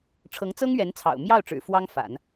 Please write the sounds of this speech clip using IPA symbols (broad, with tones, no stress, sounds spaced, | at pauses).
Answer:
ʈ͡ʂʰ ɤ˧˥ ŋ t͡s ɤ˥ ŋ ɥ ɛ˧˥ n t͡sʰ ɑ̰˨˩ ʊ̯ m j ɑ˥˩ ʊ̯ ʈ͡ʂ ɻ̩˨˩ f w ɑ˥ ŋ f a̰˨˩˦ n